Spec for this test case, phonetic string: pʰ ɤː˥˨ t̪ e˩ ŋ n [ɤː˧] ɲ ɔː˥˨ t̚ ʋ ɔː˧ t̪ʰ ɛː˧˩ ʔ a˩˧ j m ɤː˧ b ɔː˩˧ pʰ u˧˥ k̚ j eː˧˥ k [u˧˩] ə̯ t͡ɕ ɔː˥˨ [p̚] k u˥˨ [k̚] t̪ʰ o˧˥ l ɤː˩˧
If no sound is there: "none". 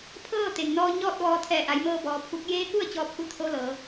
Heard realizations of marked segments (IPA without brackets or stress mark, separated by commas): ɔː˧, u˥˨, p̚, none